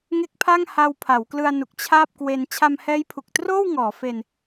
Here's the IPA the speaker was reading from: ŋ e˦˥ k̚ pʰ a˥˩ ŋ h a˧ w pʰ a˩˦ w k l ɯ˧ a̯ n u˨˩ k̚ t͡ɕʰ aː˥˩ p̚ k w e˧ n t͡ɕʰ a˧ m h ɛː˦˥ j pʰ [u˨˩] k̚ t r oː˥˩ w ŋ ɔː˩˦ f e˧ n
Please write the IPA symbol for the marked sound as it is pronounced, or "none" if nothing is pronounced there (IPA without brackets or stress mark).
u˨˩